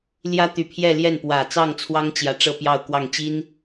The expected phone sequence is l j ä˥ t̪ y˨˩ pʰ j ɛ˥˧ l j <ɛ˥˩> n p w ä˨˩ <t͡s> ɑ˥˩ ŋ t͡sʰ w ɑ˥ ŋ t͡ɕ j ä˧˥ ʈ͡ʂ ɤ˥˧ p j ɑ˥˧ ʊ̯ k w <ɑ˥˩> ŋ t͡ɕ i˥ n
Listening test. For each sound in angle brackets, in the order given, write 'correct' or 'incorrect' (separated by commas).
correct, correct, correct